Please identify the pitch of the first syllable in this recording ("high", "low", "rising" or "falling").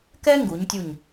high